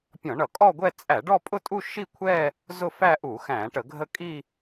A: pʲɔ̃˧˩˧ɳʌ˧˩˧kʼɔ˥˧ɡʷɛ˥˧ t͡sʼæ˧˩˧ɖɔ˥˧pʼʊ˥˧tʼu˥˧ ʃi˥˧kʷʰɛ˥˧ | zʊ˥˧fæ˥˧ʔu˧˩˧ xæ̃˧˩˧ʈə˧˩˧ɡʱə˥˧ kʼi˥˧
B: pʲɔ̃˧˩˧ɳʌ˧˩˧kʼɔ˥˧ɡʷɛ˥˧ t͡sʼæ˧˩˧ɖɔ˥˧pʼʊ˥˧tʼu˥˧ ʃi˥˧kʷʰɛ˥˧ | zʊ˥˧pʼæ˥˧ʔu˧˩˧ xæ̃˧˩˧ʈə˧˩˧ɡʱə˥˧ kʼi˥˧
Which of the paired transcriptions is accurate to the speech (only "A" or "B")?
A